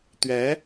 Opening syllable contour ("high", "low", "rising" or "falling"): rising